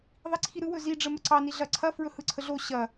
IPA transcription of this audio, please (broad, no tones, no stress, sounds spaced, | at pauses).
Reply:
ðˤ i ǀʰ i ɾ ɯ w ɵ z i ɖ͡ʐ ə m ə ǀ ɑ n i ɮ ɐ ǀʰ ɐ f ɹ ɵ h ɯ ǀʰ ə ɮ o ɕ ɐ